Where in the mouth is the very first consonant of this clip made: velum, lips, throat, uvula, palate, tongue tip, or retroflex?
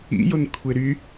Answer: palate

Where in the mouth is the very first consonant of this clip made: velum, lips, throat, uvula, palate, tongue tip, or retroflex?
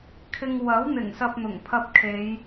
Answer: velum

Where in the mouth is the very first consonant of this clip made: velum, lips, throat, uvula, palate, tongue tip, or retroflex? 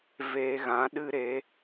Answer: lips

